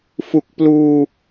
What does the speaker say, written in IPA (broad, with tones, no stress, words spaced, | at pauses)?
fu˨˩k̚pluː˧